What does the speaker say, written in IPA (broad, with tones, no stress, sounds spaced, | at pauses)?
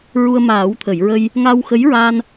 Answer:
ɹ u˧ ə̯ m aː˨˩˦ w t̪ʰ ə˨˩˨ j ɹ ə˧ j | ŋ a˧ w x ə˧˥ j ɹ a˧ n